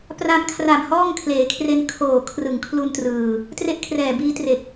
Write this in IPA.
p r a˧ m kʰ r a˨˩ m h ɔː˥˩ ŋ kʰ l eː˩˦ kʰ r e˧ n kʰ oː˨˩ kʰ r ɯ˨˩ ŋ kʰ l u˧ n t r ɯː˨˩ | t r e˥˩ ʔ kʰ r ɛː˨˩ b iː˦˥ t r e˨˩ k̚

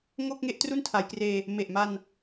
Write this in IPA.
ŋ o˥˩ k̚ ŋ e˥˩ ʔ t r u˥˩ n tʰ a˩˦ j k r eː˧ | m e˨˩ ʔ m a˧ n

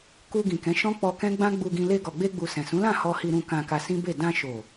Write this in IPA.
k u˧ ɡ ĩ˨ k ɛ̃˨˦ ʃ ɔ̃˦ k͡p ɔ˧ k ɛ̃˦ ɡ͡b ã˦ ɡ͡b u˧ ɡ ĩ˧ l e˧ ɡ ɔ˨ ɡ͡b e˧ ɡ͡b u˨ s ɛ̃˨ s ũ˨˦ l ã˦˨ h ɔ˧ h i˧ ɾ ũ˧ k ã˧ k a˧ s ĩ˦ b e˦˨ d ã˧ ʃ o˨

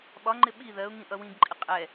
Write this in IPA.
ɓ ɒ ŋ͡ǃ ɪ ɓ i ð ɜ ʊ̯ ŋ ĩ ʔ ʌ w ĩ ɡ ǃʼ ɪ qʼ ɛ

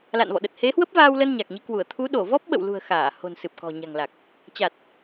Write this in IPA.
l a̰˧˨ n v ɔ̰˧˨ ɗ ə˨˩ t̚ h e˨˦ h w ə˦˥ p̚ v aː˧ w l ə˧ n ɲ a˨˩ k̚ ɲ i˨˦ k w u˧˩ ə̯ t̪ʰ u˨˦ ɗ o˧˩ v ɔ˦˥ p̚ ɓ ə̰˧˨ w l ṳ˨˩ ə̯ x aː˧˩ h o̤˨˩ n s ɨ˨˩ p̚ k ɔ̤˨˩ ɲ a̤˨˩ ŋ l a˨˩ k̚ | t͡ɕ a˨˩ t̚

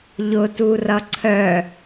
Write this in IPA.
ʎ ʊ t u r ʌ ǀʰ œ

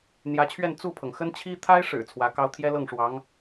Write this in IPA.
n̪ j ä˧˥ t͡ɕʰ ɥ ɛ˥˧ n t͡s u˥˩ pʰ ɤ˩ ŋ x ə˥ n t͡ɕʰ i˥ t̪ʰ a˥ ɪ̯ ʂ ɻ̩˨˩ t͡sʰ w ä˧˥ k ɑ˥ ʊ̯ t̪ʰ j ɛ˥ l ɤ˥˩ ŋ ʂ w ɑ˧˥ ŋ

